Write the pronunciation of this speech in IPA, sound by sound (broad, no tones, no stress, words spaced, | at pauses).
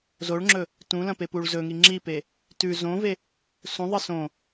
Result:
zoɭŋ͡ǁɵ | tũlɐ̃pepuɭ zɵŋi ŋ͡ǁipe | tʉ zõve | sũðˤɨ sõ